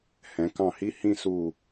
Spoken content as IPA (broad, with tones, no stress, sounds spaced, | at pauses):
h ɛ̃˩˧ k ɑ̃˧˩ h i˦˥ h ĩ˥˨ s u˧˩